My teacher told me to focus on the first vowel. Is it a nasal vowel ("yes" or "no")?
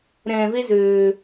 yes